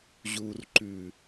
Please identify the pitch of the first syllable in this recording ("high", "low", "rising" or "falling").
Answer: low